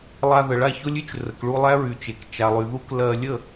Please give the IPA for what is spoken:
lˠa˧ðə˨ɭa˦˨ ço˦lʲy˦t͡ʃ rə˨kɭu˧ lˠæ˦ɹy˨t͡ʃe˨k t͡ʃa˨lˠy˨ ðu˦k lɜ˧lʲə˦˨

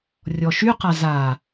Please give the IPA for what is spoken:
rʲɔʃyqa za

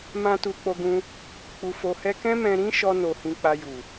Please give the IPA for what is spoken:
mã˦tu˧ k͡po˧ɡũ˧ | k͡pu˧ fo˧hɛ˦ kɛ̃˦mɛ̃˧ɾĩ˦ʃɔ˧ no˧hĩ˧k͡pa˧ju˨

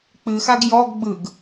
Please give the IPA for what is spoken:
k͡pɨxaɡ jɔɡ ɡ͡bɯɡ

